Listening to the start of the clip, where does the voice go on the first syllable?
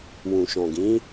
low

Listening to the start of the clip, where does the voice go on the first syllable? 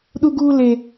high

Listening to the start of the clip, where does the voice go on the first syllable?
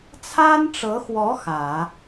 high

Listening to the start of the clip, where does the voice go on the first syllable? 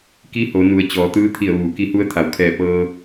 rising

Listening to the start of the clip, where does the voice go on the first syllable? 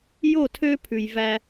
falling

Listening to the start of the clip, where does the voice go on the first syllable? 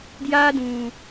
high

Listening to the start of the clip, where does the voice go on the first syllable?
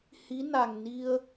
rising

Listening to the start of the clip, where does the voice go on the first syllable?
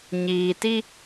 low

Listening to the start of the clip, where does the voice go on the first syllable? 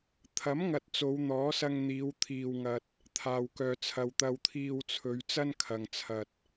rising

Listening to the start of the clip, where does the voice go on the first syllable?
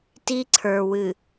high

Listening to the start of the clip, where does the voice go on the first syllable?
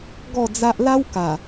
falling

